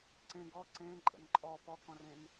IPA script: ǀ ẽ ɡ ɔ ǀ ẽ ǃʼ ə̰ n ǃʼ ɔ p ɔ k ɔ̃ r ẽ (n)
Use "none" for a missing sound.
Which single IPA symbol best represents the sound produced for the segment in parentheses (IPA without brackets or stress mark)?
n